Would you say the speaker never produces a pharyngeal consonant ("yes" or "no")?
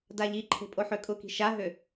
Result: no